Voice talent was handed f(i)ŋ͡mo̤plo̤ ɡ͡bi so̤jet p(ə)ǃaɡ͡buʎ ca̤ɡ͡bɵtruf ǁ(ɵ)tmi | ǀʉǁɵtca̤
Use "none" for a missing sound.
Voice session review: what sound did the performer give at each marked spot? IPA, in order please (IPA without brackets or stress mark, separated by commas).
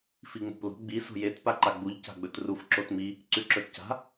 i, a, o